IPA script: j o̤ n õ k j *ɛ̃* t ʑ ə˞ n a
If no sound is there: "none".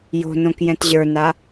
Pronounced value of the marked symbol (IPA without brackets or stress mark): ɛ̃